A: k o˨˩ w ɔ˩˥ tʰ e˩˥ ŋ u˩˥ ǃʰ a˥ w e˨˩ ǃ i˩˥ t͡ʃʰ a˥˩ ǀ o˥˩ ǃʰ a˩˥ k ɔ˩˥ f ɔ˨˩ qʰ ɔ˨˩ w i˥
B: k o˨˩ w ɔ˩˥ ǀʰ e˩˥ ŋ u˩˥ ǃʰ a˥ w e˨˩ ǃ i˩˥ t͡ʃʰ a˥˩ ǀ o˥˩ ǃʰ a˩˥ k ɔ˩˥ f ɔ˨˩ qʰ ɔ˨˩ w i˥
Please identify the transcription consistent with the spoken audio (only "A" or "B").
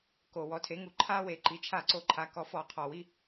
A